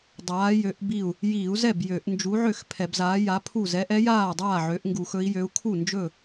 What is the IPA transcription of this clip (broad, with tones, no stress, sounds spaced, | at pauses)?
dˤ aː˨˥ j ø˨˥ ʔ b i˥˩ u̯ | j iː˧˩˧ u̯ z ɛ˥˩ b j ø˧˩˧ ʔ n d͡ʒ u˨˥ ʕ ø˥˩ x pʰ ɛ˧˩˧ b z aː˨˥ j a˨˥ pʰ u˥˩ z ɛ˨˥ ʔ ɛ˨˥ j aː˥˩ dˤ aː˥˩ ʕ ø˨˥ ʔ ŋ ɡ u˧˩˧ x ɵ˨˥ i̯ j ø˨˥ u̯ kʰ u˥˩ n d͡ʒ ɵ˥˩